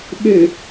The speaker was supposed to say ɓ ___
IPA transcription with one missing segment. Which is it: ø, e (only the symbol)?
ø